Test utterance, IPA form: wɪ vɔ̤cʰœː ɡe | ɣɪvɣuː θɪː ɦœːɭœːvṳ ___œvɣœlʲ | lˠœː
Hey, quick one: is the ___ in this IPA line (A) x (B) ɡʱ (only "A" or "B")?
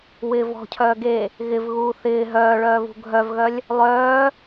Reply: B